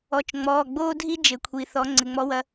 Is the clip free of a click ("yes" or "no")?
no